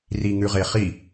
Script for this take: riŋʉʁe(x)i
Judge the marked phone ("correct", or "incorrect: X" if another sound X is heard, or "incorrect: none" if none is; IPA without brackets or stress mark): incorrect: χ